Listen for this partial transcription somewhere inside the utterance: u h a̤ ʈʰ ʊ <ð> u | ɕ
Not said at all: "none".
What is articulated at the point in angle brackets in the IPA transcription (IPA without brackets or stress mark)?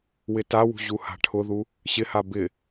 ð